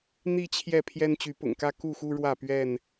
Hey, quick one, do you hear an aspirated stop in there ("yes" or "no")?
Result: yes